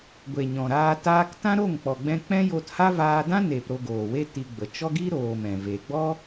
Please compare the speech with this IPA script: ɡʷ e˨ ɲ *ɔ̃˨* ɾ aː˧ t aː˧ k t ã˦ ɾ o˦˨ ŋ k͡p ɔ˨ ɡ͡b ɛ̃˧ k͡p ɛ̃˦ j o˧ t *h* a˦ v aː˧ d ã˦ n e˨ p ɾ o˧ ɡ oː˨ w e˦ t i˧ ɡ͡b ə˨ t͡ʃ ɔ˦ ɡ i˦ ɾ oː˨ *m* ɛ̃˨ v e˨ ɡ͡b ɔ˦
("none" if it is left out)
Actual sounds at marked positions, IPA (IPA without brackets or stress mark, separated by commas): ɔ̃˨, h, m